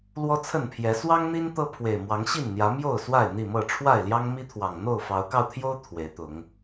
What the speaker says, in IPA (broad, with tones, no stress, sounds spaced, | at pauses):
l w ɔ˦ t͡sʰ ə˥˨ n pʰ j ɛ˨˦ s w ɑ˦ ŋ n̪ i˦ n t̪ ɤ˦ pʰ w e˨˩ ɪ̯ m w ɑ˨˦ ŋ ɕ i˥˨ n n̪ j ä˨˦ m j o˥˨ ʊ̯ s w a˥˨ ɪ̯ n̪ i˥˨ m ɤ˥˨ ʈ͡ʂʰ w a˥˨ ɪ̯ l j ɑ˦ ŋ m i˦ t̪ʰ w ɑ˨˩ ŋ n̪ o˥˨ ʊ̯ f ɑ˨˦ ʊ̯ k ɑ˧ ʊ̯ t̪ʰ j o˦ ʊ̯ t̪ʰ w e˨˦ ɪ̯ t̪ ʊ˨˦ ŋ